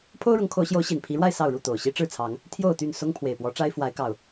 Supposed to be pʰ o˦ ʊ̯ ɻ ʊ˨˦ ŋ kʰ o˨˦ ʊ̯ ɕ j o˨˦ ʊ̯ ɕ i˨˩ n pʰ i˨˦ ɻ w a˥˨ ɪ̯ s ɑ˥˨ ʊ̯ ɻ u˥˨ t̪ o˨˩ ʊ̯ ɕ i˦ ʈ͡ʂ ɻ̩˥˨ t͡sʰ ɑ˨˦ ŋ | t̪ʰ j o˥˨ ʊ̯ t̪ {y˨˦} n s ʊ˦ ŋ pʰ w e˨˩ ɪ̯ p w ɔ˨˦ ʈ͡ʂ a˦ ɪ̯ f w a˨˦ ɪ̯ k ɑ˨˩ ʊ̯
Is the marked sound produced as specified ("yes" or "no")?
no